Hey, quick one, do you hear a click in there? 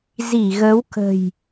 no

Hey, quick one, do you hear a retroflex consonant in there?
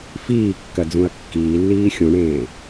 yes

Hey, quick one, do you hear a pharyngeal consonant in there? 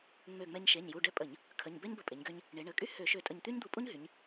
no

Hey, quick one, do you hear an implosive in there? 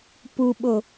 yes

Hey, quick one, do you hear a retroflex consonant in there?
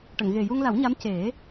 yes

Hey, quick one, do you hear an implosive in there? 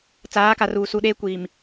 yes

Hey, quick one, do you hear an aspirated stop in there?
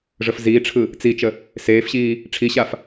yes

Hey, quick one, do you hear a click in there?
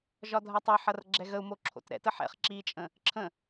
yes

